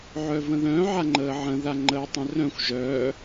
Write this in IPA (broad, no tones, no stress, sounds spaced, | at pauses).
ʕ œ v ə̃ ð œ̃ ʕ a ŋ͡ǃ əː ʕ ə̃ ð a ŋ͡ǃ əː tˤ œ̃ r œ̃ xʷ ʒ œː